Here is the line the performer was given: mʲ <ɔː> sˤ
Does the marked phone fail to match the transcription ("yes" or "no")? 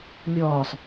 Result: no